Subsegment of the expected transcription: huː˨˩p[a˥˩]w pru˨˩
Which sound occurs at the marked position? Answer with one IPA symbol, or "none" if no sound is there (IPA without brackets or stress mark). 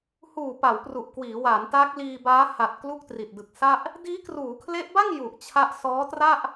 a˩˦